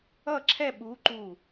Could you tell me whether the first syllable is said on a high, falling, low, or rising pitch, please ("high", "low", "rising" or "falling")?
falling